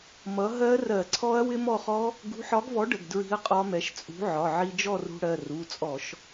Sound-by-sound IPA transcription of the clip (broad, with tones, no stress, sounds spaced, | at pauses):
m ʌ˨˥ ɦ ɜ˦˥ r ɜ˧˩˧ ǀʰ ɔ˦˥ ɐ̯ w ɪ˦˥ m ɔ˥˨ χ ɔ˦˥ | ɡ ṳ˨˥ ħ ɒ˨˥ ɡ v ɔ˨˥ ɖ ə˩˧˩ ɡ d ɹ i̤˦˥ ɐ̯ qʼ ɒ˦˥ m ɛ˨˥ ʃ t͡sʼ ṳ˨˥ ʕ ɒ˩˧˩ ʕ i˧ d͡ʒ ɔ˥˨ r ṳ˧ ɽ ɜ˩˧˩ r u˩˧˩ t͡sʼ ɔ˧˩˧ ʃ